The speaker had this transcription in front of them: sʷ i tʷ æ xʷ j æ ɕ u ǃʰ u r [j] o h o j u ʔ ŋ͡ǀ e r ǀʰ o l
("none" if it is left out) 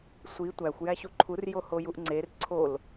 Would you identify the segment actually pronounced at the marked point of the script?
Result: j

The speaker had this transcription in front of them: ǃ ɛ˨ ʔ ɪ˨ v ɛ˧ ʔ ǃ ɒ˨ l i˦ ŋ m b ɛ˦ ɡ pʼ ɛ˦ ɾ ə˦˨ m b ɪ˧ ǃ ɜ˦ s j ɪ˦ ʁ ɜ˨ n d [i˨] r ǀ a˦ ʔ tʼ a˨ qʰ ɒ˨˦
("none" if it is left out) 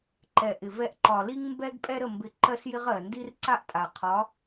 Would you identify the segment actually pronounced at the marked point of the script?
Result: i˦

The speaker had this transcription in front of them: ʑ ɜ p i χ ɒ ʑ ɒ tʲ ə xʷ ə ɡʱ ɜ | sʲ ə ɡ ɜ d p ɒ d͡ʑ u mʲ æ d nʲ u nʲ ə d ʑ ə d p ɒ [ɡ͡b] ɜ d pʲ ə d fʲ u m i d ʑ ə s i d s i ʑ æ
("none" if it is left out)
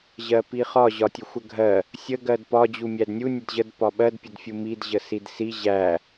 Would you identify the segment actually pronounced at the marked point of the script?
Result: ɓ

